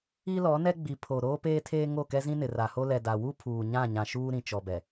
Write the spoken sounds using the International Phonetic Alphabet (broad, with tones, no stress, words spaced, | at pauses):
i˦lɔ˨˦nɛ˦ ɡ͡bi˨pʰo˨ ɾoː˦peː˦tʰeː˦ ŋo˦˨kɛ˦zĩ˦ nɪ˨ ra˨ho˦ lɛ˨da˨wu˦ pʰuː˨ɲã˦˨ ɲã˨ʃuː˦ɾĩ˨ t͡ʃɔ˨bɛ˨